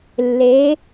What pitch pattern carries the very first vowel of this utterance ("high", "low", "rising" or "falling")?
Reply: rising